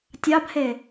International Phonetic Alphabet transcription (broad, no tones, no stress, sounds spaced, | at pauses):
tʲ ɑ b h e